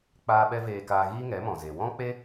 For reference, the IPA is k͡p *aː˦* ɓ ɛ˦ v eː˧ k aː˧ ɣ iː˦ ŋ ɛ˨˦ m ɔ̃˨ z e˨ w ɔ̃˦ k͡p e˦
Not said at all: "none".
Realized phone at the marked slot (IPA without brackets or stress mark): aː˦